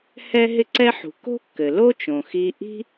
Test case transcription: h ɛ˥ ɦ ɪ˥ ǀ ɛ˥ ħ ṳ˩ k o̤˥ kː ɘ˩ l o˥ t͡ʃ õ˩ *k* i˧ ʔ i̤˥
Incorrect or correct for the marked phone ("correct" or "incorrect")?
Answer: incorrect